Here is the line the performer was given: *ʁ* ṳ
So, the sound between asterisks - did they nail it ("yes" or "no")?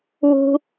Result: no